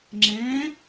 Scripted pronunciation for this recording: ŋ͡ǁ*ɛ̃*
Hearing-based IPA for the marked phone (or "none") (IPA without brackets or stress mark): ɛ̃